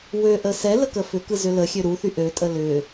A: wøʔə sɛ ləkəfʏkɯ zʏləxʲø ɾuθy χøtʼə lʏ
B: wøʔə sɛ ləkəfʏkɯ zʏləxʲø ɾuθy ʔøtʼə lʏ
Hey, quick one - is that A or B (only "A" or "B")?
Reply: B